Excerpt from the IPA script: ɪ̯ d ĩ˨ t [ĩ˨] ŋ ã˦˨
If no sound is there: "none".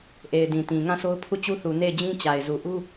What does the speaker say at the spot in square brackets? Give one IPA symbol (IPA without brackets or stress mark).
ĩ˨